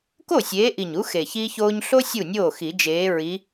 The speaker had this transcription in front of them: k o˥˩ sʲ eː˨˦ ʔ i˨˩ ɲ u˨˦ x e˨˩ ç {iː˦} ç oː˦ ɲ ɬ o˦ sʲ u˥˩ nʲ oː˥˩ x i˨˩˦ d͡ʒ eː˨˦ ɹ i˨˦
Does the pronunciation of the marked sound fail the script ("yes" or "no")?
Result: no